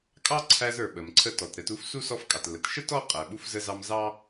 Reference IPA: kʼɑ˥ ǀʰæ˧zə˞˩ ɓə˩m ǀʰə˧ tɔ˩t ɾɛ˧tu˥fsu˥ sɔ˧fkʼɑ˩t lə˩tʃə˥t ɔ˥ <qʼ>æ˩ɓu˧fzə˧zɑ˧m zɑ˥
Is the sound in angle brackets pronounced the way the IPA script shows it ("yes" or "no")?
yes